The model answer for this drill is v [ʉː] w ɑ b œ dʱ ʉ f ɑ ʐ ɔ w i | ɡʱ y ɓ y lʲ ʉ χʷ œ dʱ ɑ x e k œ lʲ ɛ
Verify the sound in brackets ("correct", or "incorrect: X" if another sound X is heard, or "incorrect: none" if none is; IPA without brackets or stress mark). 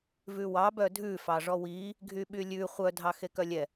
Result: incorrect: ʉ